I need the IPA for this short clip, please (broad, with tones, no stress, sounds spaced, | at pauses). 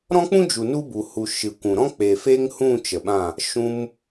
ɾ ɔ̃˦ k͡p ũ˦ d͡ʒ u˨ n u˦ b u˨ h u˨ ʃ ɨ˨ kʷ ũ˨ ɾ ɔ̃˦ k͡p e˨ f e˦ ŋ h ũ˦˨ t͡ʃ ə˨ ɓ ã˦˨ | ʃ ũ˧ m